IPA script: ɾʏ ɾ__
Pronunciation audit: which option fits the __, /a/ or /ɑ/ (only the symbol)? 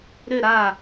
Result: a